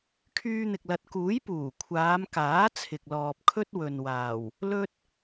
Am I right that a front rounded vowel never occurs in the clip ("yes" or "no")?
no